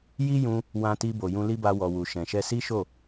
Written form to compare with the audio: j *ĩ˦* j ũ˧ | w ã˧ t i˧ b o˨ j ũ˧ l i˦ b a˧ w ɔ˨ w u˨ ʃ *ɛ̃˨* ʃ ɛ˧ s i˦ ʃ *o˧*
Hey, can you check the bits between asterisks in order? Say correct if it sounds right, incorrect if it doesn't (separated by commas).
incorrect, correct, incorrect